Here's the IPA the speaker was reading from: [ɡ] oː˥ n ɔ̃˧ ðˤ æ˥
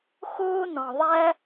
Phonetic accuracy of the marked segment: incorrect: x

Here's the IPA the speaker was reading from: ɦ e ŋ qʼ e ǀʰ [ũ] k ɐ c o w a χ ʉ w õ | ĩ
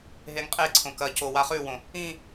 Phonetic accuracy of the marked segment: incorrect: õ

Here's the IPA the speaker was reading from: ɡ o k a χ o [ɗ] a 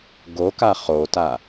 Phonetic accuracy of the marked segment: incorrect: t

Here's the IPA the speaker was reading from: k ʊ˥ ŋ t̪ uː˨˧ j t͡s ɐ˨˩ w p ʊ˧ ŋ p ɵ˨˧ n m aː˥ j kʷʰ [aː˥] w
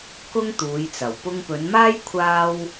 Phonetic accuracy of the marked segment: correct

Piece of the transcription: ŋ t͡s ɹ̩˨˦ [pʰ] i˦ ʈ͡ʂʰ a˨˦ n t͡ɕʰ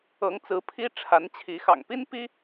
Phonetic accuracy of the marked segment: correct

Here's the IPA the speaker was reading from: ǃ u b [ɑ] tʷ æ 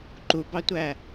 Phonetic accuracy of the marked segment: correct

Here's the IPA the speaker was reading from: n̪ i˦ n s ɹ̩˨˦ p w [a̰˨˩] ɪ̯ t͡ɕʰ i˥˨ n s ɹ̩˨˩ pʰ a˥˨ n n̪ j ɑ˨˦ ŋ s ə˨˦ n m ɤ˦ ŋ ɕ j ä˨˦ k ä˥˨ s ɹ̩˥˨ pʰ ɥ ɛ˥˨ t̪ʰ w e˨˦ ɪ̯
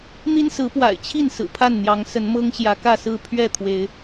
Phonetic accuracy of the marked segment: correct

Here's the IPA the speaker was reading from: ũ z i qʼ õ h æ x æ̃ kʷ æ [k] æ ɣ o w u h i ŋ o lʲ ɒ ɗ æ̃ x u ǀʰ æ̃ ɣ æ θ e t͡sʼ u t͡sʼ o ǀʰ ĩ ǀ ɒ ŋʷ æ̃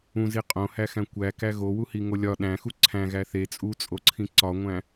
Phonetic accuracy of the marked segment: correct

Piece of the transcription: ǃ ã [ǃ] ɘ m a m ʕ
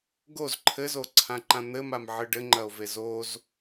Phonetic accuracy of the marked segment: incorrect: n̪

